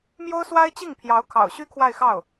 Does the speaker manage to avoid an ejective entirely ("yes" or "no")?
yes